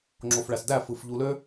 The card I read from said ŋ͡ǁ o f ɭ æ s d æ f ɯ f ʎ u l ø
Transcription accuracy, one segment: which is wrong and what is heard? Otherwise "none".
none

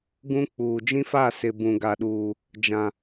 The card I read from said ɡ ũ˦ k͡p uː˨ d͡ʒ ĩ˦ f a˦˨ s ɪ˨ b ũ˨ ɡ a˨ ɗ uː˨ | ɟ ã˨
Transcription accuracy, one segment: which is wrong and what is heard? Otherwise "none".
ɟ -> d͡ʒ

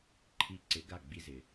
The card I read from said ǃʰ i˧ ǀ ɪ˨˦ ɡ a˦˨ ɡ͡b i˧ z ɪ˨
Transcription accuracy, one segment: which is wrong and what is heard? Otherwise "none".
none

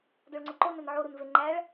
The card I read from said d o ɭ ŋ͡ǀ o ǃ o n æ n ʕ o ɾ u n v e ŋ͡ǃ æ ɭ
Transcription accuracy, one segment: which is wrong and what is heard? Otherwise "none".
none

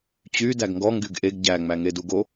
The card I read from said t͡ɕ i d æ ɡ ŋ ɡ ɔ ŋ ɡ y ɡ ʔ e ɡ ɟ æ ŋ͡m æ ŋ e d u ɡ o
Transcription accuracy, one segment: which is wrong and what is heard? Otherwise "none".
i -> y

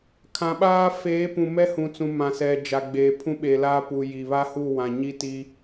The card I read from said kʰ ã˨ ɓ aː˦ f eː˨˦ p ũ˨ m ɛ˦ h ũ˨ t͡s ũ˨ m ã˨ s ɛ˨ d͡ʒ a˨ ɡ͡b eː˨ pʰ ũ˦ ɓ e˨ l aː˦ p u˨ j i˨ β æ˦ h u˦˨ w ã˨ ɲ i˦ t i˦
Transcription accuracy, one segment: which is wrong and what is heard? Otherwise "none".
æ˦ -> a˦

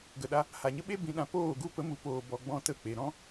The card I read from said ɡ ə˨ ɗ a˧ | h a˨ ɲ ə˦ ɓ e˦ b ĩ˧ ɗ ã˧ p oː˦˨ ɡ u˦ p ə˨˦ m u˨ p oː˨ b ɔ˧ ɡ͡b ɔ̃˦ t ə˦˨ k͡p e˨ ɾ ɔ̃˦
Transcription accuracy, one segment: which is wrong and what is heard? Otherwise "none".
none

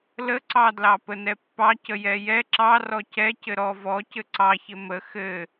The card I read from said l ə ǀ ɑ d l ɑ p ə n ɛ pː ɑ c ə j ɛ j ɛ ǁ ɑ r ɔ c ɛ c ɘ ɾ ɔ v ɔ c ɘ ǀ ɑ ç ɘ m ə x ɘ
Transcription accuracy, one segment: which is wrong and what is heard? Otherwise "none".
none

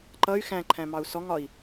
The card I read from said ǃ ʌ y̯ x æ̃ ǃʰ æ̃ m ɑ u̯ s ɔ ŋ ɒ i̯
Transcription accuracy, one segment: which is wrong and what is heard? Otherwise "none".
none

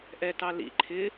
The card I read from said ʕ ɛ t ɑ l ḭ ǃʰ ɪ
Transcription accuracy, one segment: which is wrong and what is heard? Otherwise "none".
ʕ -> ʔ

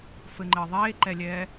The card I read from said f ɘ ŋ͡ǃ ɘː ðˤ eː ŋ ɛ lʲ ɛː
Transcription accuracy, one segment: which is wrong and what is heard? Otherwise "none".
ŋ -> ǃ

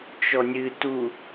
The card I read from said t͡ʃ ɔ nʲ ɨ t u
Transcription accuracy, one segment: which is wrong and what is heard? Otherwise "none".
none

